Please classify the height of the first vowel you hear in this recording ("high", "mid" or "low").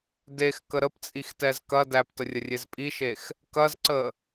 mid